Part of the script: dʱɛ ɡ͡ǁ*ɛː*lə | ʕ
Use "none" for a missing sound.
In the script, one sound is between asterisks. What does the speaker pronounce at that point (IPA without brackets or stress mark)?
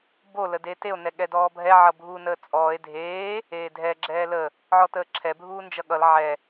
ɛː